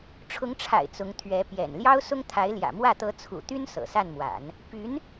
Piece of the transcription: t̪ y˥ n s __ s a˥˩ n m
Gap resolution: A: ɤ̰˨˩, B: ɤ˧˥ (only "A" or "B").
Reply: A